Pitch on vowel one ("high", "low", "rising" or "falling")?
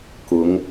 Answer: rising